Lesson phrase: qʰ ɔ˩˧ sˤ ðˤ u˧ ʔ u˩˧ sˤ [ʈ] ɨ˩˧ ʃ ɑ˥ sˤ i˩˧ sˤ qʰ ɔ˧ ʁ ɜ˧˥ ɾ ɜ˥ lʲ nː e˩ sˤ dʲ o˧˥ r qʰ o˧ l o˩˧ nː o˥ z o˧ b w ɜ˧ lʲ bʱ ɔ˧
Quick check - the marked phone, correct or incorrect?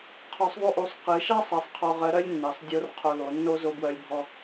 incorrect